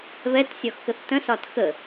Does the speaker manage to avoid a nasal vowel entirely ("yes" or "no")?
no